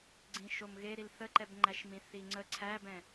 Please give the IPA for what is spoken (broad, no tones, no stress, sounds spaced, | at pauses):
ɡ͡ǀ ĩ ʃ o m ɣ e ɾ i l θ ə ǃ ɛ b ŋ͡ǃ æ ʃ m ĩ θ i ŋ͡ǀ ə ǀʰ æ b ɛ̃